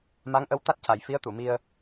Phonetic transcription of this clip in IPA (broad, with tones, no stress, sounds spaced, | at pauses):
m a˧˥ ŋ ʔ ə˧˥ w t̪ a˦˥ t̚ c a˨˩ j f i˧˥ ə̯ t̪ u˨˩˨ m i˧ ə̯